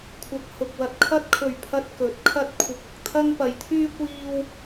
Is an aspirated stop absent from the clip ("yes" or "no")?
no